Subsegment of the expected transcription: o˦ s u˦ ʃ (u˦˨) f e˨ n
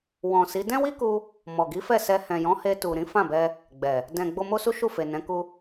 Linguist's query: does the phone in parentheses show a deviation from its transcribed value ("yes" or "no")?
no